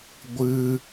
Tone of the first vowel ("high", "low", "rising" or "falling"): high